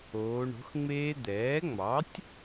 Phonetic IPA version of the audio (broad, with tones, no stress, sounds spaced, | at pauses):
oː˩˧ ɳ o̤˩˥ x ŋ͡m eː˦˥ d̪ ɛː˩˥ ŋ͡m ɑ˩˥ tʲ